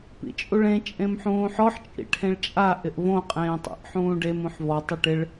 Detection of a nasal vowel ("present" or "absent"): present